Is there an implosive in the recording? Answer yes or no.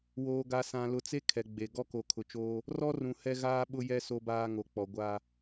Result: yes